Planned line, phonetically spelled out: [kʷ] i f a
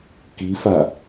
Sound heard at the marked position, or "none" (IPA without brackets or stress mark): k